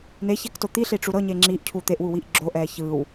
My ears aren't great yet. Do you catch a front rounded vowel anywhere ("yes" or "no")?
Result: no